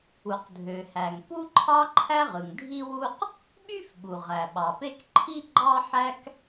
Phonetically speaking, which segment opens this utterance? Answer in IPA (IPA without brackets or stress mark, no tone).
u